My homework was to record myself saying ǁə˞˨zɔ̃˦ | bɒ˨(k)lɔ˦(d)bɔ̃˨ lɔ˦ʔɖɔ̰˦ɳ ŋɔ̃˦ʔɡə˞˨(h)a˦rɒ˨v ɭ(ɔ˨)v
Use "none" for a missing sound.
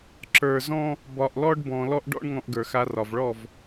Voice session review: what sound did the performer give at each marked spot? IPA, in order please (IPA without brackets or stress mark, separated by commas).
ʔ, ɖ, x, ɔ˦˨